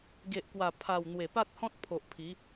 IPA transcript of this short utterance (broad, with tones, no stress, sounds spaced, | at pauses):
ɡ e˨ ʔ k w a˨˩ pʰ a˨˩ w n̪ w e˨˩ p a˦ t̚ h ɔ̃˦ t̚ pʰ o˨ ʔ pʰ i˨˦